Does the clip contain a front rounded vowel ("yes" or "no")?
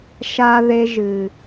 no